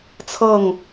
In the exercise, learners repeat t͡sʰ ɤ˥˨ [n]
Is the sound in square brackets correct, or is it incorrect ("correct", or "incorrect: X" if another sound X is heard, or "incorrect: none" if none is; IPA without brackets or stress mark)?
incorrect: ŋ